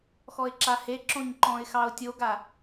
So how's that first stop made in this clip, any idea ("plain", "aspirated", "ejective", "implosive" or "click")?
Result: click